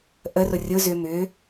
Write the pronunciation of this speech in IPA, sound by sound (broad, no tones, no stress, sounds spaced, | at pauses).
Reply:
ʔ ə r ʊ rʲ ʊ z ʏ m ʏ